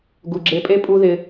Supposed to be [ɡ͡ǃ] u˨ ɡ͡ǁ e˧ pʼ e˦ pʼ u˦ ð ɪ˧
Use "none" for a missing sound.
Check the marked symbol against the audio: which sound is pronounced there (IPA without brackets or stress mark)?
ɡ